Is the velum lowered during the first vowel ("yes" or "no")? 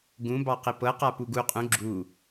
yes